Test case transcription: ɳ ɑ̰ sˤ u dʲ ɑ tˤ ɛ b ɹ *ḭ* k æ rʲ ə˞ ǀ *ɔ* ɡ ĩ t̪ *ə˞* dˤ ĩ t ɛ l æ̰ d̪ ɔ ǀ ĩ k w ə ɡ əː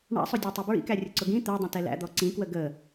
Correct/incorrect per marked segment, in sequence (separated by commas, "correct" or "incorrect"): correct, incorrect, correct